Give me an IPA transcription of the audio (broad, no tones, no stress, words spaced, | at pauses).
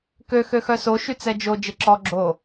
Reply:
kø xøxœso ʃyt͡sɛd͡ʒo d͡ʒeǁɔ ɡ͡ǁo